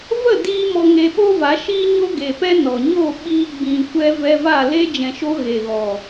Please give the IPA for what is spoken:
və˦˨ diː˦mɔ˧ŋe˧ ɓo˦va˨˦ʃiː˦ɲo˦ ɡe˨pɛ˧ nɔ˨ɲo˦˨ɓiː˧ ɡ͡bĩ˨ kʷɛ˧ vɛ˧va˦˨ le˦ d͡ʒɛ̃˨ʃo˧ ɣe˨ɣɔ˨

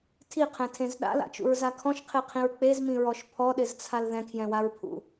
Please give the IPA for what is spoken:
tʰiqʰɛ̃tʰẽz ɗa̰la̰t͡ʃṵɹza kʰɔ̃ʃqʰeqʰĩɹ k͡pezmĩɹɔʃ pʰɔɗɪzt͡sʰal ðɛ̃kʰjɛ̃waɹpʰṵ

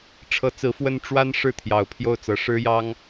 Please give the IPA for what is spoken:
ʈ͡ʂʰɤ˧˥ t͡sɹ̩˧˥fwə˥n ʈ͡ʂwa˥n ʂɻ̩˥˩t̪ʰjɑ˨˩ʊ̯pʰjo˥˩ʊ̯t͡sɤ˧˥ ʂɻ̩˥jɑ˥ŋ

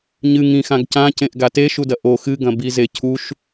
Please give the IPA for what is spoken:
ɲɨŋ ĩxãɡ cãcẽʔɡa teʃudɐ ʔo xɨɡɐ̃ bizecʰuʃ

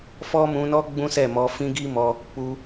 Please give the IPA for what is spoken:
fɔ˦mũ˧nɔ˦ ɡ͡bũ˦sɛ˦˨mɔ˧ fĩ˦ɡi˦mɔ˧ | k͡pu˧

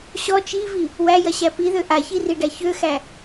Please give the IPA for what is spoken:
ɕɔ t͡ʃivi | wæjɐɕæ piðø ʔaçiriɖæ çøxæ

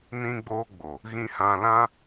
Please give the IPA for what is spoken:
nĩ˧ɡ͡boː˧ɡ͡bo˨ | ɣĩ˧hã˧lã˦

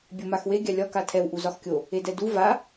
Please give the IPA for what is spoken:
bʲomaxwe ɡʲalʲɒ katʰɛw ʔuzɒxkʲo | edɛdu va

